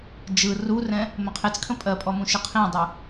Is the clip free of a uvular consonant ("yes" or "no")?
no